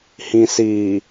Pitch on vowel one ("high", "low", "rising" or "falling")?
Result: low